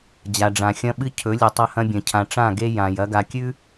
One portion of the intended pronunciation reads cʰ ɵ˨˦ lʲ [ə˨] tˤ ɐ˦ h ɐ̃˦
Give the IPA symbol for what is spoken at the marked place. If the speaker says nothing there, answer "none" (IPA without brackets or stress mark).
ɨ˨